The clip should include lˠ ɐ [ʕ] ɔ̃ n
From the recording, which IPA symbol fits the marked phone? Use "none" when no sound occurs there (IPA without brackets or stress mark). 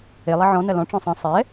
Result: ʕ